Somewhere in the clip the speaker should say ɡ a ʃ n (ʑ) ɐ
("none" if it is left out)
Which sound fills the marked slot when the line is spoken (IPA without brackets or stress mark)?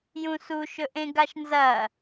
z